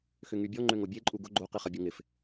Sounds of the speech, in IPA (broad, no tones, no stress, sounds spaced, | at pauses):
x ʏ ŋ y bʲ ɔ ŋ͡ǃ ø ŋ o bʲ e ǃʼ u ɡ ʊ ɡ͡ǃ o q i χ ɐ bʲ o ŋ ɪ f